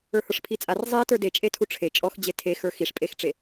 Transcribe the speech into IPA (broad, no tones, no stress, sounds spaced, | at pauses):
ə˞ h ə˞ ʂ pʰ i t͡sʼ a r zˤ i t ə˞ d e t͡ʃʼ e tʰ u ʈ͡ʂʰ e t͡ʃʼ ɔ x d͡ʑ e tʰ e x ə˞ x i ʂ pʼ e x ʈ͡ʂ e